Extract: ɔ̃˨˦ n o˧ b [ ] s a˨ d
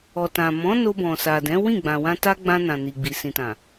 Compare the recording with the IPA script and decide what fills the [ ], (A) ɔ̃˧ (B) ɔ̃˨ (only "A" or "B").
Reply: B